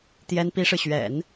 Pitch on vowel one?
high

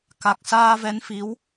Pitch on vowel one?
low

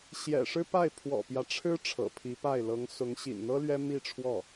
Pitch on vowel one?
low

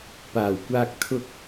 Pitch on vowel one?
low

